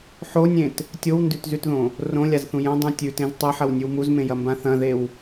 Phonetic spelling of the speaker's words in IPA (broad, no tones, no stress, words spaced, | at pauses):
ħonʲẽt | tʲowndʉtzʉtðõ | rõlʲazθũ jɐ̃dˤũ tʲʉtẽz tˤɐħɐwnʲʉw muzmẽjɐmbã θɐ̃ðew